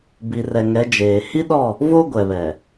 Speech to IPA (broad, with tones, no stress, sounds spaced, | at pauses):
b i˨ r ɛ˨ ŋ ɛ˨˦ d͡ʒ eː˨ h i˦ ɗ ɔ˦˨ | v o˦ ɡʷ ɛ˨ β ɛ˨